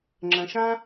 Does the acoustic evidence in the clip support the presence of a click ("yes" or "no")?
yes